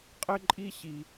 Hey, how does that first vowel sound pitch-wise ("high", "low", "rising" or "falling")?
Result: high